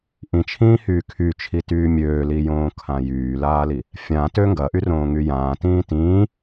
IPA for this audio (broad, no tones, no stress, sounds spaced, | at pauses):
ʔ ĩ t͡ʃʰ ĩː h yː kʰ y t͡ʃʰ i t yː mʲ øː l i j õː kʰ ã j yː l aː l i | fʲ ã t ø ŋ ɡ ɐ ʔ y r õː ŋ y j ãː t ĩː t ĩː